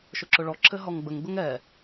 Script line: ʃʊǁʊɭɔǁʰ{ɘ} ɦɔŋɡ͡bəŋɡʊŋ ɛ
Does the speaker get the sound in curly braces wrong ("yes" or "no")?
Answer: no